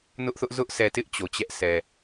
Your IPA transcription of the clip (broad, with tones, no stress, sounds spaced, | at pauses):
n ʊ˦ ʔ θ ʊ˦ ʔ z ʊ˦ ʔ s ɛ˨ t ɪ˦ ʔ t͡ɕ o˨ t͡ɕ ɛ˦ ʔ s ɛ˨